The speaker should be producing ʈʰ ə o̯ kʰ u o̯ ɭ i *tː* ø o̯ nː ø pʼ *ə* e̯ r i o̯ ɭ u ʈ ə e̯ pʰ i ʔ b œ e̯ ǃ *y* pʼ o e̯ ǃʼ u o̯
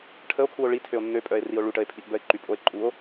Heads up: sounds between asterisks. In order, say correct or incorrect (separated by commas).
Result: incorrect, incorrect, correct